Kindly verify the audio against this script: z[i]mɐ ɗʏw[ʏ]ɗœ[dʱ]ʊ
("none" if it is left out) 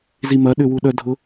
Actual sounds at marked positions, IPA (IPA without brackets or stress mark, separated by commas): i, u, dʱ